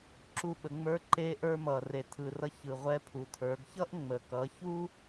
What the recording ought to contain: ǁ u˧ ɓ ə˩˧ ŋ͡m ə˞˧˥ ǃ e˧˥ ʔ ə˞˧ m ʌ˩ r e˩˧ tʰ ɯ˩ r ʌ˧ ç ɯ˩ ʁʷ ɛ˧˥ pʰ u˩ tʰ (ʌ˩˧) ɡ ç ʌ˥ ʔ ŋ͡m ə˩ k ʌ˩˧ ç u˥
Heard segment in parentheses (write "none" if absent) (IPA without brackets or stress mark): ə˞˩˧